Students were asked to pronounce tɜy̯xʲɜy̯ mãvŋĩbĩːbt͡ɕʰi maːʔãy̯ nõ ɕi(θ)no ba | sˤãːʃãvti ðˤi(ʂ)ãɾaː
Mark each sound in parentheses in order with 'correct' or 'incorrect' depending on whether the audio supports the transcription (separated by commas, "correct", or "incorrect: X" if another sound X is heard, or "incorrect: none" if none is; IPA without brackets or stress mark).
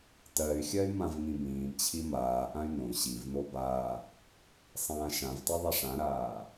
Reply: incorrect: v, correct